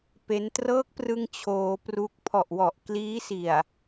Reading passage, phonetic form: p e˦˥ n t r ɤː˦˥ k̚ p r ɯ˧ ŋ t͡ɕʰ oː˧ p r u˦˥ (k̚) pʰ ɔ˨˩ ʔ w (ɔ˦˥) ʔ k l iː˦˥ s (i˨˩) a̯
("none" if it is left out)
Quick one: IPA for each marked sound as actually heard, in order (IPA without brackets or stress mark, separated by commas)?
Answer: k̚, ɔ˨˩, i˨˩